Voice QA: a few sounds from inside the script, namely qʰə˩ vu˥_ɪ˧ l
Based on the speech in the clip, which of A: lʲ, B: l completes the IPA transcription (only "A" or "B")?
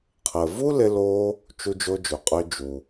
B